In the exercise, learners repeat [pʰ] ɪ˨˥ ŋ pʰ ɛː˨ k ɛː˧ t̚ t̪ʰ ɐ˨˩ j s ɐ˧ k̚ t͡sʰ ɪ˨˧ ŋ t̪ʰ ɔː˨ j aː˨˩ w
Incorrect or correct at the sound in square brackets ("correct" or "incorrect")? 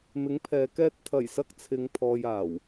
incorrect